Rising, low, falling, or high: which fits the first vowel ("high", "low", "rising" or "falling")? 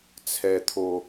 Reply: low